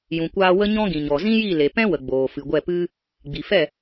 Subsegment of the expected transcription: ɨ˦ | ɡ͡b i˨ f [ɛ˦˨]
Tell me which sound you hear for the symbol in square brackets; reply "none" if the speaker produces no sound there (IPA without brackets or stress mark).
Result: ɛ˦˨